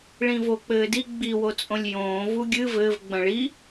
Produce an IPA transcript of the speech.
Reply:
ɭ ĩ v o k͡p ɘː d i ɡ͡b i w o t͡sʼ õ lʲ j õː v u ɡʲ ɨ v ɘː v ɡ͡b ɐ̃ ɭ i

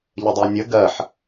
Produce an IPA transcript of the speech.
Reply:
ʎ ə dˤ ɜ nʲ ə ɡ ɜ ħ

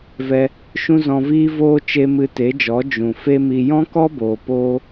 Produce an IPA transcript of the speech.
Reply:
v ɛ˧ | ʃ ũ˦ z ɔ̃˧ v iː˦ v oː˧ t͡ʃ e˧ m ɨ˧ t e˨˦ d͡ʒ ɔ˨˦ d͡ʒ ũ˨ f e˦ m i˧ j ɔ̃˦ k ɔ˦ b oː˨ p oː˦

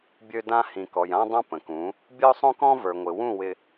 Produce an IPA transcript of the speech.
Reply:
bʲ ø˦ d ã˦ h ĩ˨ k ɔ˨ j ã˦ dˤ ã˦ p ə̃˨ k ũ˨˦ | bʲ ə˦ ʊ̯ sˤ õ˦ k ɔ̃˦ v ə˞˨ ŋʷ ɪ˨ w ũ˦˨ w ɪ˨

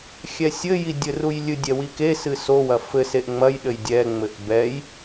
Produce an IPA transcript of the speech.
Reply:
xʲ ɛ sʲ ɘ j i dʲ ɘ r u j lʲ ɨ dʲ ɛ w i k e s ɨ s o w ɐ f ɘ s e ʔ ŋ͡m ɐ j ɗ ɘ j dʲ ɛ ŋ͡m ɘ ʔ b ɛ j

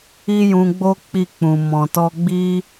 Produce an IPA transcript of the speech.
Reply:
i˦ j ũ˧ ɡ͡b o˦ k͡p i˦˨ k͡p ũ˨ m ɔ̃˨ t ɔ˧ ɡ͡b i˦

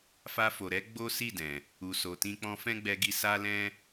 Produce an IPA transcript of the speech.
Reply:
f a˧ f o˨ ɾ ɛ˨˦ ɡ͡b o˦ s i˦˨ d ɛ̃˨ | u˨ s o˨ t ĩ˧ k͡p ɔ̃˧ f ɛ̃˦ ɡ͡b ɛ˧ ɡ i˧ s a˦ l ɛ̃˦

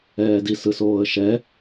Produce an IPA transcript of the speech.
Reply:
ɛː d i s ɯ s oː ə̯ ʃ ɛ

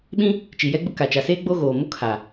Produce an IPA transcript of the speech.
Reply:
ɓ ĩ˦ | t͡ʃ i˨ j ɛ˦ ɡ͡b ʊ˦ k a˨ t͡ʃ a˨ s eː˦ ɡ͡b o˦ ɣ oː˨ m o˦ kʰ a˨

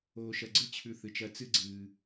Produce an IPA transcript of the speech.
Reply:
oː˨ ʃ ɐ˨ ɡ͡ǀ ɨ˥ t͡ɕʰ ʉ˨ θ ɨ˩ t͡ʃ ɐ˨ t͡s ɨ˥ ɡ͡ǀ ɨː˨

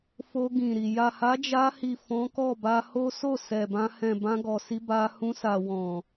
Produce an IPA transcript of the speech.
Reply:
f o˧ ɡ ĩ˨ ɾ i˨ j a˨ h a˨˦ d͡ʒ a˧ h i˨ f ɔ̃˨˦ k ɔ˦˨ b a˧ h o˦ s o˦˨ s ɛ˨ b ã˧ h ɛ̃˨ b ã˧ ɡ ɔ˨ s i˧ b a˧ h ũ˧ s a˨ w ɔ̃˨

